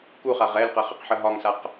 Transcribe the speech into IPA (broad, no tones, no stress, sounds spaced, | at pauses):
k u χ a ʁ ɛ l q ə χ ə q ħ ə ɦ ɒ ŋ s a q